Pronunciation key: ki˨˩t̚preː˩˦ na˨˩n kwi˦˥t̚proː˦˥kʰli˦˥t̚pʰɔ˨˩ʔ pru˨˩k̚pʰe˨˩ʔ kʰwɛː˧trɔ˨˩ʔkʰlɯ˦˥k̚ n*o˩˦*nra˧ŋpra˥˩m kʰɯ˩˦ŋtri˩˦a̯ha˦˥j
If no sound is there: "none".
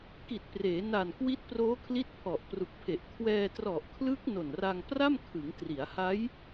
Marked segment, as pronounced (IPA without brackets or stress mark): o˨˩